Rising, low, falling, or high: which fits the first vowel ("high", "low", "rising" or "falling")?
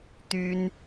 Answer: high